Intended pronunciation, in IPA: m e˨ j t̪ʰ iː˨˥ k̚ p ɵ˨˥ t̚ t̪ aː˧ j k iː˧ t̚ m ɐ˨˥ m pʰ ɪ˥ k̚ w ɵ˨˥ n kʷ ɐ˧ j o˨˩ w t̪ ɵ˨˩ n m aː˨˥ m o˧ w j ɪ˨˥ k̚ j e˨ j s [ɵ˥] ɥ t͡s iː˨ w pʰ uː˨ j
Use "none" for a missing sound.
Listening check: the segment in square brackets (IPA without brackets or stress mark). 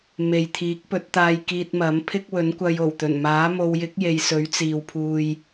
ɵ˨˥